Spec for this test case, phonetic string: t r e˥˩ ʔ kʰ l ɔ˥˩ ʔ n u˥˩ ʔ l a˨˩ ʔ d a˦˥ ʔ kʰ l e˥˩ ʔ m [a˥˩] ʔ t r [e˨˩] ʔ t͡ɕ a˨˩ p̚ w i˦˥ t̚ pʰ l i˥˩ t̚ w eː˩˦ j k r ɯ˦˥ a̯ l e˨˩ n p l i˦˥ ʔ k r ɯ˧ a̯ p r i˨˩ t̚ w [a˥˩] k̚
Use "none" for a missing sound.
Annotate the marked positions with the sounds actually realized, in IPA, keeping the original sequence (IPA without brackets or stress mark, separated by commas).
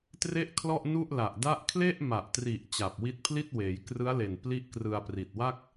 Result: a˨˩, i˨˩, a˥˩